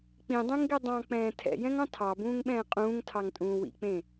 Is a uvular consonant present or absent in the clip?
present